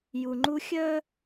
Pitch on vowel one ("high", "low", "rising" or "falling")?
low